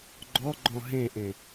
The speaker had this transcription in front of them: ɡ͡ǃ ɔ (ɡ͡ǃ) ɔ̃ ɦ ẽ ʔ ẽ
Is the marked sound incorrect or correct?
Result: correct